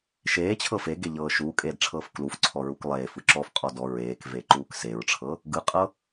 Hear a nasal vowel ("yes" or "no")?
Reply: no